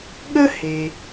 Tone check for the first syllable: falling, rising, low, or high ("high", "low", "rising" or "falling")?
high